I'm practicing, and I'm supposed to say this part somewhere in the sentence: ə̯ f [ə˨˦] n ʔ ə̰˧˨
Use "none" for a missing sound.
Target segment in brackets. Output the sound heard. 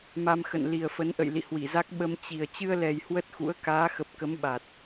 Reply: ə˨˦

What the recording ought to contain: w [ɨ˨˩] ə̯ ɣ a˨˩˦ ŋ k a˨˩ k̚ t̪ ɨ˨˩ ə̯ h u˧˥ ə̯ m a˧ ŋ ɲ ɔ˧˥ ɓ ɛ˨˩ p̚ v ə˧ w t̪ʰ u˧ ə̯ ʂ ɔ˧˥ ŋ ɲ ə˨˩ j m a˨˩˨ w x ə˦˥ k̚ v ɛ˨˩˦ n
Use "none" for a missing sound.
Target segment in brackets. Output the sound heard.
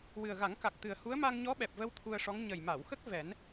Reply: ɨ˨˩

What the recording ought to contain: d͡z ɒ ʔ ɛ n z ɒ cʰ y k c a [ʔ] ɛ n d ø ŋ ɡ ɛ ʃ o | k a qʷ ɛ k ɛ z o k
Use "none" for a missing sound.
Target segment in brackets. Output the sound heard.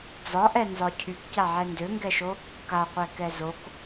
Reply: ʕ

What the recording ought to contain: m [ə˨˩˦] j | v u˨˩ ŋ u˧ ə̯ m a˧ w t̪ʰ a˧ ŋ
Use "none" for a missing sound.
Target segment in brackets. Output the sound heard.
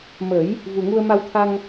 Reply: ə˨˩˦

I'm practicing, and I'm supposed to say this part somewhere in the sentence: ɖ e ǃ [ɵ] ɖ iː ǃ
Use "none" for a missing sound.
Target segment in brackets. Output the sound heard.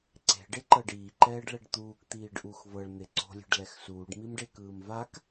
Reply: ɤ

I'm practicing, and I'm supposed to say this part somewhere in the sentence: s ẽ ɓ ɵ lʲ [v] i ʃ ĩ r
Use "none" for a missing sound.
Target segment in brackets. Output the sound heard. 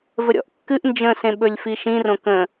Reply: f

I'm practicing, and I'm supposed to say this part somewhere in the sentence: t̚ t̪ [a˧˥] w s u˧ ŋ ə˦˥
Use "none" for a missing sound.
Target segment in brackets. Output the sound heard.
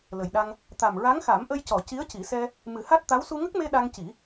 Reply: a˧˥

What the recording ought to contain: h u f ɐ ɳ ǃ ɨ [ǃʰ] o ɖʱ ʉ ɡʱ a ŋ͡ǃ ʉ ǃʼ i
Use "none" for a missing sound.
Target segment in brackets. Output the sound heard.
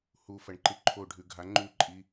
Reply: ǃʰ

